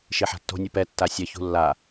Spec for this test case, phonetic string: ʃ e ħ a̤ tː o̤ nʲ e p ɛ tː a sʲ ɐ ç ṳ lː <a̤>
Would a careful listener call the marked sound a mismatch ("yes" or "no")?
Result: yes